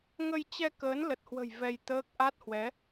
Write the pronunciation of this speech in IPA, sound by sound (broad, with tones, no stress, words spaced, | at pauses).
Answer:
ŋə˧jt͡ɕɛ˧ kəː˨˦nlə˨˩t̚hwə̤˨˩j vɛ˧jt̪əː˦˥k̚ ʔa˦˥t̚hwɛ˨˦